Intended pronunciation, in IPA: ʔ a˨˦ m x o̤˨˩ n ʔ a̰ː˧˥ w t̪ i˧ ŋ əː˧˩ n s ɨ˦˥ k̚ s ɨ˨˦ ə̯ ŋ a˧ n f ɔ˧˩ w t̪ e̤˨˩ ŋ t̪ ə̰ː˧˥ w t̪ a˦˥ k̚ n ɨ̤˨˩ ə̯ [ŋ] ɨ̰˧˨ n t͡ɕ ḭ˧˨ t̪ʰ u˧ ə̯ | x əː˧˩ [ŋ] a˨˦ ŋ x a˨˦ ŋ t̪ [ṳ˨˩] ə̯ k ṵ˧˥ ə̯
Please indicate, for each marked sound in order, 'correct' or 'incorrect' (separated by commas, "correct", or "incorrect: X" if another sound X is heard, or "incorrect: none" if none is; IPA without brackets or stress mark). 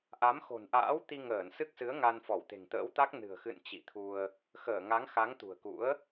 incorrect: x, correct, correct